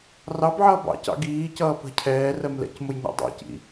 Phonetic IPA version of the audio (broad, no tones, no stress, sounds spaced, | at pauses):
r ɑ b ʕ ʌː b ɑ̰ c ɑ̰ ɡ iː c ʌː p ə̤ cʰ ɛː r ɜ m l ɛ̰ c m ʊ j ɲ ɑ̰ dˤ ɑ̰ c ḭ